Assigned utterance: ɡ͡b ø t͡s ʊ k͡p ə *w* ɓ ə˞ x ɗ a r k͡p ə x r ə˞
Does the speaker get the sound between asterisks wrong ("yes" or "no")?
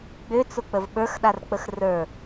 yes